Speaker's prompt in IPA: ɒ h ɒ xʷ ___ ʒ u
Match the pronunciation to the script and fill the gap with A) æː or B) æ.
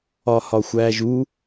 A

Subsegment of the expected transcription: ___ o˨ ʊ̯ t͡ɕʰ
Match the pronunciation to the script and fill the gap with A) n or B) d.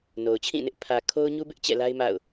A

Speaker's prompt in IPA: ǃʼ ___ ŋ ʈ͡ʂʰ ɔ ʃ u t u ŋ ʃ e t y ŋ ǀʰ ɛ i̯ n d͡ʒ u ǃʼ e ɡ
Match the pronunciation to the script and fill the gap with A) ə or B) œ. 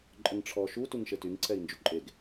A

